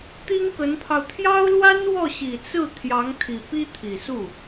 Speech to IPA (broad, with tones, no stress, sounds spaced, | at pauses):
t̪ i˥ ŋ k ə˧˥ n pʰ ɑ˧ ʊ̯ t̪ʰ j ɑ˥ ʊ̯ l w a˥ n w ɔ˥˩ ɕ i˨˩ t͡s ɹ̩˥˩ t̪ʰ j ɑ˧˥ ŋ t̪ʰ i˨˩ p i˥ t̪ʰ i˨˩ s u˥˩